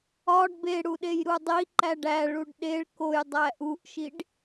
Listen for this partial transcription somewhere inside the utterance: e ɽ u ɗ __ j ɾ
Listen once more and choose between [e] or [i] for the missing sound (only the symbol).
e